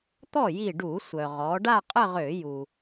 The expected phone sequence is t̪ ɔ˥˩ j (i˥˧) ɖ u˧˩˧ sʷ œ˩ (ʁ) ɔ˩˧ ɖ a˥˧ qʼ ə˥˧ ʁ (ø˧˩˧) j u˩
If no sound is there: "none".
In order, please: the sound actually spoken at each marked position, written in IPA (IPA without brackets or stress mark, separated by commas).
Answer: i˧˩, ʁ, ø˧˩˧